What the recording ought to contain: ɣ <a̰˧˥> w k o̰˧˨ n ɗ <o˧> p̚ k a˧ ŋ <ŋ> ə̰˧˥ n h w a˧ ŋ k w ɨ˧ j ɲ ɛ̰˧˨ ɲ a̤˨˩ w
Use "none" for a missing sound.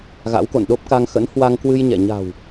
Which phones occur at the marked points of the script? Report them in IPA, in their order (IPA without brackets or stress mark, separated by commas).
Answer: a̰˧˥, o˦˥, x